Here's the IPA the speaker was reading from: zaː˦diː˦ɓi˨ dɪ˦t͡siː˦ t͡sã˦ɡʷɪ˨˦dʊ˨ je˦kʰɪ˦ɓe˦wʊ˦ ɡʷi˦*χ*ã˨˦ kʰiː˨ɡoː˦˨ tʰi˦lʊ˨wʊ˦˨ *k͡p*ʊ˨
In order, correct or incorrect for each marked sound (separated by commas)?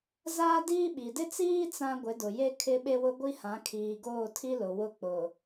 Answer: incorrect, correct